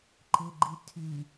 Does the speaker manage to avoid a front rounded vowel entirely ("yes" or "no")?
no